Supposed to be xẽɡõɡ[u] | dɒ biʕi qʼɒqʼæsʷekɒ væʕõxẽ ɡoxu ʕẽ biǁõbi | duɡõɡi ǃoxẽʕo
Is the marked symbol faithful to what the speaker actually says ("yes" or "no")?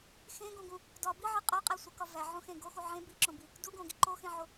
no